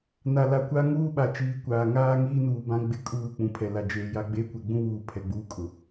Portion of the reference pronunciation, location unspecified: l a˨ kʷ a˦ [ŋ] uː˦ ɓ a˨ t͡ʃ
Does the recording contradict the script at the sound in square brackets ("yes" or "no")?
no